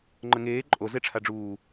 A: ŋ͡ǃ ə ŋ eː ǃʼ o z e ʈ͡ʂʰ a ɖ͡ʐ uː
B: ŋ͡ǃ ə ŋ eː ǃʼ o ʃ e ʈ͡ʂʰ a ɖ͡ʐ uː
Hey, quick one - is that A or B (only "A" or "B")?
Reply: A